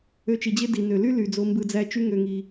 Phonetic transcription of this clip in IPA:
ø˧ t͡ʃ i˨ d͡ʑ e˦ d i˨ n ø˨ l y˦ l y˨ d͡z o˧ m b ɯ˧ d͡z æ˦ t͡ʃ y˦ ŋ ø˨ ŋ i˨

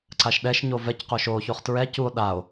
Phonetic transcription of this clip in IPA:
ǀ a ʃ ɗ ɛ ʃ ɲ o v ɛ c q o ʃ o ç o χ t ɹ ɛ c u o̯ ɗ a o̯

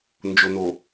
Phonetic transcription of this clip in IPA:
n d͡ʒ o˨ n o˨

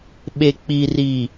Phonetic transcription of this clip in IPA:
ɓ e˨ k͡p iː˨ r i˨

